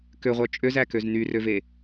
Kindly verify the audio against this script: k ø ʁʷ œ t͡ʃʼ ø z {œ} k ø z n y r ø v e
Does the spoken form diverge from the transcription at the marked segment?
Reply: yes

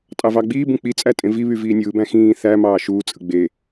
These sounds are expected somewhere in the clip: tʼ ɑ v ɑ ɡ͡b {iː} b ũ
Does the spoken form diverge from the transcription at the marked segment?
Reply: no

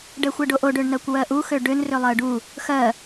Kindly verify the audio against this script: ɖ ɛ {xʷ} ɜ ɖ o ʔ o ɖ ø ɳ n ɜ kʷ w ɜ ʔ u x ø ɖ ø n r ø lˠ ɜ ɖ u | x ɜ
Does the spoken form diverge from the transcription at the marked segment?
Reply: no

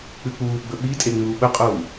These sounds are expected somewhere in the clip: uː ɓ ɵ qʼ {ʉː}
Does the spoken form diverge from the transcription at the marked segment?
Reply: yes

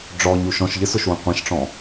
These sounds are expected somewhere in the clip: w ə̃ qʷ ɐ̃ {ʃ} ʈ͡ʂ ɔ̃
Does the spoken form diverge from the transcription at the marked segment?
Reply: no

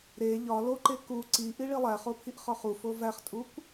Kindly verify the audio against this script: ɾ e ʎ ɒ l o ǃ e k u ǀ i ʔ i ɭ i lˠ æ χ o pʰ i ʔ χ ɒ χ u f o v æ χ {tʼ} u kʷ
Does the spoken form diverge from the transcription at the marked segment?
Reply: no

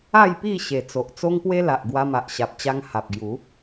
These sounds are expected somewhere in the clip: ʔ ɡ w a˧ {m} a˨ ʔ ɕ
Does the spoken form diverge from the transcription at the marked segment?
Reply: no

